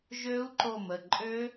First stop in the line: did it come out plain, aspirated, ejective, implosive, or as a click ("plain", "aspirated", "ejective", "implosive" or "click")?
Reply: click